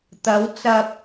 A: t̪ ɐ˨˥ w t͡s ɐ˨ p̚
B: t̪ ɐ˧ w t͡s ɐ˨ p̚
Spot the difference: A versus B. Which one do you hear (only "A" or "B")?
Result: A